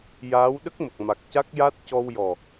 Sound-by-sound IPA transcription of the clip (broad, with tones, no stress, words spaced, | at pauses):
jaː˧˥w ɗə˦˥k̚mə˨˩k̚ma˨˩k̚ ca˦˥k̚ja˦˥t̚ cɔ˧wjɔ˨˩